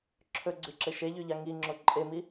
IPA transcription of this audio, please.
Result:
ǁʰ ɵ ɡ͡ǀ ʉ ǁ e ʃ e ʎ ʉ ʎ a ŋ i ŋ͡ǁ o ǃʼ e m i

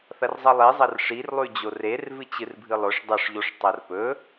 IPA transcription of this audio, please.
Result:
θ ɐ r zˤ ɐ lˠ i zˤ ɐ r ʂ i r lˠ ʉ d͡ʑ o r e r v ɨ t͡ɕ ɨ r bʱ ɨ lˠ ɵ ʂ dˤ ɐ ʂ ʎ o ʂ tˤ ɐ r p ɵ

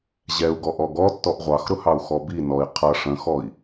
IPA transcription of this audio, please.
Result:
ʑ ɛ u̯ ɡ ɔ ʔ ɔ ɡ ɔ tː ɔ ʔ ʁʷ ɑ x ɾ ʊ h ɑ u̯ x ɔ b i n ɔ i̯ qʰ ʌ ʂ ə̃ x ɔ i̯

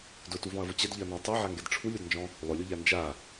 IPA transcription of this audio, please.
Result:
d ʊ t u v ɔ̃ ɐ̯ v ʊ t͡ɕ ɛ d ʎ ɪ ɐ̯ n ɔ̃ ɐ̯ tˤ ɛ ʕ a ŋ ɡ ɛ d ʈ͡ʂʰ u lʲ o d n d͡ʒ ɔ̃ | lˠ ʊ lʲ ʊ ʎ a n d͡ʒ a

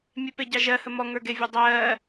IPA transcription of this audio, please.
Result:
mʲ e p e ɟ ɑ ʒ ɜ h ə m ɔ ŋ ə˞ ɡ e vʲ a dˤ ɜː

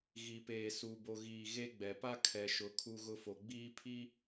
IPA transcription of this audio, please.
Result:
ɣ i˨ p eː˨ s u˨ b o˨ ɣ iː˨ ɣ e˦ ɡ͡b ɛ˨ p a˦ kʰ ɛ˨ ʃ ʊ˨ kʰ u˦ ɣ ʊ˦ f o˨ ɡ͡b iː˦ pʰ i˦

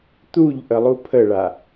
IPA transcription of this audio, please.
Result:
t̪ u ʎ ʔ ə lˠ u pʰ ə ɭ a

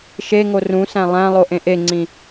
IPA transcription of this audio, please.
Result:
ʃ e ŋ o r ũ s æ̃ lˠ æ̃ lˠ o ʔ ẽ ʔ e ŋ͡ǀ ĩ

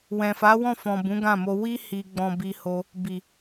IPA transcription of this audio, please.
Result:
w ɛ̃˨ f a˨˦ w ɔ̃˦˨ f ɔ̃˨ b ũ˨˦ ɡ ã˦˨ m o˧ w i˦ h i˧ ɡ͡b ɔ̃˧ b i˧ h o˧ | b i˨

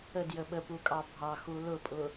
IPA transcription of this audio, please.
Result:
ə d j ə ɓ ə p u kʼ ɑ bʱ ɑ x u l ʊ pʼ ʊ

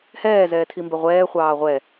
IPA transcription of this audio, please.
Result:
h ɛː z ɛː tʰ i m b ɛ ʁʷ ɛː χʷ ɑː ʁʷ ɛ

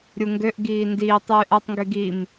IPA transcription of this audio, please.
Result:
ɾʲ u ŋ ɡ ø ʔ ɡ iː n d iː tˤ yː ʔ a tˤ ŋ ɡ y ɡ i m

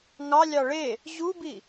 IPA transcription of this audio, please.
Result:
ŋ ɑ lʲ ɑ ɭ e | ʑ u b i

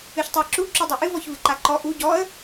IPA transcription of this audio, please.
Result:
ɨ ç tˤ ɨ ə̯ ǁ u ǁ u dˤ u ʔ ɨ v ɔ ç v ɨ ǃ a ǃ ɔ ʔ u ɟ ɔ ə̯

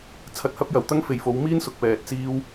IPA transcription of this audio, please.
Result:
t͡sʰ ɐ˧ t̚ h ɐ˥ p̚ j ɐ˨ w t̪ ɐ˥ ŋ f e˨ j f o˨˥ w m iː˥ n s ʊ˨ k̚ p ɛː˨ t̚ t͡s iː˧ w

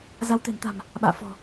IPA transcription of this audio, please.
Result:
z a˨˦ w t̪ e̤˨˩ n t̪ a̤˨˩ m | ɓ a̰ː˧˨ f ɔ̤˨˩

